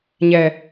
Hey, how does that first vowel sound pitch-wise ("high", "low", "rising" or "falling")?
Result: low